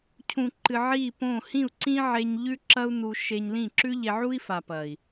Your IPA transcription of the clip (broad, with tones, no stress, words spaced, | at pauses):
cʰũ˨ǃɨ˨ ʕi˦˨põ˦˨ hĩ˦˨u̯ǀĩ˦ ʕe˧ɲ ʎʉ˦ǁɐ˦u̯ nu˧ ʃe˧ɲlĩ˦˨ ǁʉ˦ʎe˧ ʕu˦i̯fa˨pɐ˨i̯